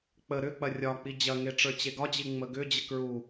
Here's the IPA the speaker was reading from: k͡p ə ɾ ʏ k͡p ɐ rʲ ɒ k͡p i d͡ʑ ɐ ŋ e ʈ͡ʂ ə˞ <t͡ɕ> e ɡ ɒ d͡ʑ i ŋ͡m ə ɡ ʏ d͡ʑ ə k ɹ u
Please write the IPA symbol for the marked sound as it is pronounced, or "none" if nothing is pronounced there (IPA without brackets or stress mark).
t͡ɕ